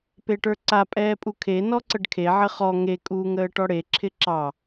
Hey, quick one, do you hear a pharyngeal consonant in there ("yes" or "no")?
yes